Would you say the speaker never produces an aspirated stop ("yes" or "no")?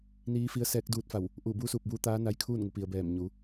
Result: no